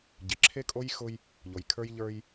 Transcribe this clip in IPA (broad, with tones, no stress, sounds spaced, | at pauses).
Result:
ɟ ɪ˨ ǁʰ e˦ kʼ o˦ j x ʊ˦ j | ʎ o˨ j kʰ ə˞˦ j ʎ ə˞˦ j